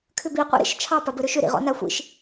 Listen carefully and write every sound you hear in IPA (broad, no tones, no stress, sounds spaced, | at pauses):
kʰ ʏ b i qʷ ḭ ɾ ḭ ʃ t͡ʃʰ ɑ p a b ɘ ɾ ʏ ʃ ʏ ɾ ḭ ʁ ɔ̰ n a xʷ ḭ ʃ